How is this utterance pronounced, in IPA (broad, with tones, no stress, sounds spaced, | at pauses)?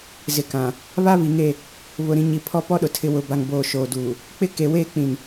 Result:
z ɪ˨ k ã˨ | β a˦ β i˨ ŋ e˦˨ | β ʊ˨ ɾ ĩ˨ ɲ i˨ pʰ ɔ˦ p ɔ˦ ɗ ʊ˨ tʰ ɪ˨ w ʊ˨ b a˨ ŋ b oː˨ ʃ oː˨ d uː˨ | k͡p ɪ˦ k e˨ w eː˦ k͡p ĩ˨ n